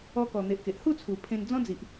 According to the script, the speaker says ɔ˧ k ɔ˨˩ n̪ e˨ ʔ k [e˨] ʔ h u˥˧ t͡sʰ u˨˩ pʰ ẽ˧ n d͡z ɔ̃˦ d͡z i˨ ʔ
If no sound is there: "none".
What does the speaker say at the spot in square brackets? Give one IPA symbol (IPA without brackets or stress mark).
e˨